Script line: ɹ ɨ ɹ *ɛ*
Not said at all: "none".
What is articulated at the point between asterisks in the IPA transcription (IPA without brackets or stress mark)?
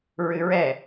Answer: ɛ